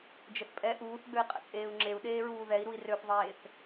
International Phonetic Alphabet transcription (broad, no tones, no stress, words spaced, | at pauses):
d͡ʒəθpʼɛ ʔuːθɡ͡bøi̯ qʼə̰t͡sʼeːu̯ŋ͡ǁeu̯ ɗeːɹuːðɛi̯ɾui̯ røθðˤeːθ